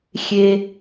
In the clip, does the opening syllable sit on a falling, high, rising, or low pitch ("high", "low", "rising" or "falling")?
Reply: high